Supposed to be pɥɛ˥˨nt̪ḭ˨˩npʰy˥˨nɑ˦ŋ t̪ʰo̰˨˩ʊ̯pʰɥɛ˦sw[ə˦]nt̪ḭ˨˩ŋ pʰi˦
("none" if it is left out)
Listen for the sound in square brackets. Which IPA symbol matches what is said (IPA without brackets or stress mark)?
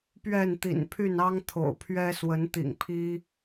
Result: ə˨˦